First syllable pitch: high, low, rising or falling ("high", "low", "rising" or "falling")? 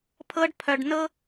high